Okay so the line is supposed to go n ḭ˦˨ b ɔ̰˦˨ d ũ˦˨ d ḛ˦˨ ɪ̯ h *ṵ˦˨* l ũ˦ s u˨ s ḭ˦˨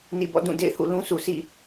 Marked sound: correct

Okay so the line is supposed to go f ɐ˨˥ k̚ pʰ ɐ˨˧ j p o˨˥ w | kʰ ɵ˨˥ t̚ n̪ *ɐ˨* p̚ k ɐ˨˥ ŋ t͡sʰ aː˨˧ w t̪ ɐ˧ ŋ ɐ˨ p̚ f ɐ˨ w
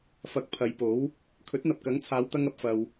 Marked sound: correct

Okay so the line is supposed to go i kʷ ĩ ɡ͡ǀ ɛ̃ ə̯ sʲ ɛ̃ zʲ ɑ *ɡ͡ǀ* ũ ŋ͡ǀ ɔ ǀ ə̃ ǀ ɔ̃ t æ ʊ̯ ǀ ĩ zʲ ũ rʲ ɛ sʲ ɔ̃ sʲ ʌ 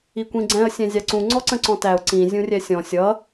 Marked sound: incorrect: ǀ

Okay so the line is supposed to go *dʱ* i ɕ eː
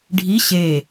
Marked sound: incorrect: ɖʱ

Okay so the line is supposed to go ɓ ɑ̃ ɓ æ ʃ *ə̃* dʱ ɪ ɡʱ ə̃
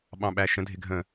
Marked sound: correct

